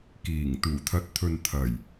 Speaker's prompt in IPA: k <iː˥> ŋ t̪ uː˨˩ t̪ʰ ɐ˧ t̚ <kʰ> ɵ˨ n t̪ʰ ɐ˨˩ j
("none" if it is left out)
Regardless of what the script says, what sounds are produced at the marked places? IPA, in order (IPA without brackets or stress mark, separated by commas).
iː˨˩, t̪ʰ